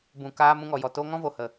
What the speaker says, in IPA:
b ũ˨ k aː˧ m ũ˧ ŋ ɔ˨ j ɔ˨ t o˦ ŋ ɔ̃˦ v o˨ h ə˨

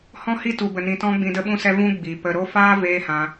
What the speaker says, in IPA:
h ɔ̃˦ h i˦ t u˨ b ə˨ n ĩ˨ t ɔ̃˧ ɡ͡b ĩ˧ d ə˦ ɓ ũ˦ s ɛ˦ v ũ˦ ɡ͡b i˨ p ə˧ ɾ o˦ f aː˦ v eː˦ h ã˧

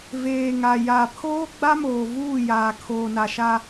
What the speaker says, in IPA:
v eː˨ ŋ a˨ j a˨ pʰ oː˦ ɡ͡b a˦ m oː˨ v uː˦˨ j aː˨ kʰ oː˨ n a˨ ʃ a˦

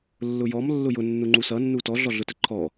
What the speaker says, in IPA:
lː ʊ j ɔ m lː ʊ j ʊ nː u ŋ͡ǃ u s ʌ nː u t ɔ ɮ ɔ ɮ ʊ t ə ǃʰ ɔ

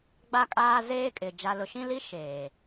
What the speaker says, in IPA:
ɡ͡b a˦ kʼ aː˦ z eː˦ kʼ ɪ˨ d͡ʒ a˨ l ʊ˨ ʃ ĩ˦ l i˦ ʃ eː˨

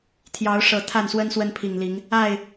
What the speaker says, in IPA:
t̪ʰ j ɑ˨˦ ʊ̯ ʂ ɤ˨˩ t̪ʰ a˥˨ n s w ə˦ n s w ə˦ n pʰ i˨˩ ŋ l i˨˦ ŋ | a˥˨ ɪ̯

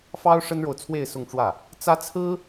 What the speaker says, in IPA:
f ɑ˥ ʊ̯ ʂ ə˥ n ɻ o˨ ʊ̯ t͡sʰ w e˥˧ ɪ̯ s ʊ˥˧ ŋ ʈ͡ʂ w ä˥˩ | t͡s ä˥ t͡sʰ ɹ̩˥

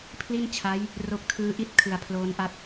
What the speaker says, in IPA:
pʰ l i˥˩ n t͡ɕʰ a˦˥ j | r o˦˥ k̚ tʰ ɯː˦˥ ʔ i˥˩ t̚ kʰ ɯ˨˩ a̯ pʰ l oː˦˥ n ʔ a˥˩ t̚

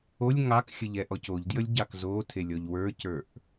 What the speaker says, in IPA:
o lʲ ŋ ɑ k xʲ ə ʎ ɛ ʔ ɔ c o ʎ d j ə lʲ ɟ ɑ k z o tʰ e lʲ ɔ ʎ w ə˞ c ə˞ ʔ

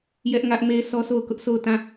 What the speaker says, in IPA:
j ɛ˦ ʔ ŋ ä˦ ʔ m e˦ sʰ ɔ˦ sʰ o˦˨ ʊ̯ k ʊ˦ ʔ s o˦˨ ʊ̯ t ã˦˨

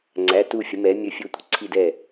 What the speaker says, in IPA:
ŋ͡ǀ æ˩˧˩ t u˧˩ fʲ ə˩˧ m ɛ˩˧ mʲ ɵ˧˩ fʲ ɵ˧˩ tʷ ə̤˩˧ ǀʰ i˧˩ d ɛ˧˩

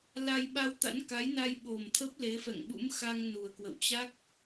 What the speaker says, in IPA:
l a˧ j ɓ a˧ w t̪ a̰˧˥ n k a˨˦ j n a˧ j ɓ o˨˩ m t̪ʰ ə˦˥ p̚ l e˨˦ f ɛ̰˧˨ ŋ ɓ ṵ˧˥ m x a˧ ŋ n u˨˩ ə̯ k w ə̰˧˨ w t͡ɕ a˦˥ k̚

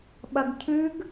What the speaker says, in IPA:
ɓ ɐ ɡ cʰ ʉ ɡ

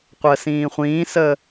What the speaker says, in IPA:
qʷ əː s ĩː χʷ ĩː s əː

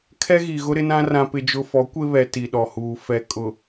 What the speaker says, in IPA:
kʰ ɛ˦ ɣ i˨ ɣ ʊ˦ ɾ ɪ˦ n ã˦ r ã˨ p ɪ˨ d͡ʒ ʊ˨ f ɔ˨˦ kʷ e˦ β ɛ˨ t i˨ ɗ ɔ˨ h uː˨ f ɛ˨ kʼ ʊ˨

